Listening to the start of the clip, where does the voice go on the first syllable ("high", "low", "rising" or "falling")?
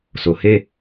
low